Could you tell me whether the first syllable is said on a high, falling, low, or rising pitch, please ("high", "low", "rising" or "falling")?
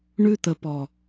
high